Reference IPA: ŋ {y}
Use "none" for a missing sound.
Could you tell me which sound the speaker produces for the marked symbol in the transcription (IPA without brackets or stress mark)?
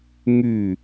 y